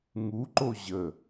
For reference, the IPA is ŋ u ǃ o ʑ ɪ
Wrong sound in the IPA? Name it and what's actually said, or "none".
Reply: ɪ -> ə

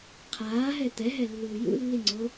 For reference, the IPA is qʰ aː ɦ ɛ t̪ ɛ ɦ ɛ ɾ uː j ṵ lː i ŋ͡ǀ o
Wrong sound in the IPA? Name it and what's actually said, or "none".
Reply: ɾ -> lː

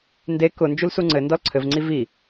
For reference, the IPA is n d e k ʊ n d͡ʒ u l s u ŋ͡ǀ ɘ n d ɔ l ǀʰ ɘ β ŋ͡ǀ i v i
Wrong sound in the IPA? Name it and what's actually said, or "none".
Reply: β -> v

